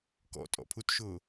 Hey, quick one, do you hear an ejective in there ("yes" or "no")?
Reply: yes